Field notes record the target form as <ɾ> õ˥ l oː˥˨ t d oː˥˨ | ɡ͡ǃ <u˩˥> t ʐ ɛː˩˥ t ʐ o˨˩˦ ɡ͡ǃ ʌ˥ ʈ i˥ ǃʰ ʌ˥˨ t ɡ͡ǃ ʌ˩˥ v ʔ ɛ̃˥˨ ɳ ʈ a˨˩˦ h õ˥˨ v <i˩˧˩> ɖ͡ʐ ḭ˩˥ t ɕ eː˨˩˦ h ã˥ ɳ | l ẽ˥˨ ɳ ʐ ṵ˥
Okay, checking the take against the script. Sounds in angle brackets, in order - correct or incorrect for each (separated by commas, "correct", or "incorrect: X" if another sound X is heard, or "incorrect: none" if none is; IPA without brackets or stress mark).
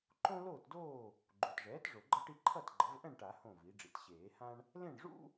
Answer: incorrect: ǃ, incorrect: u˩˧˩, incorrect: i˩˥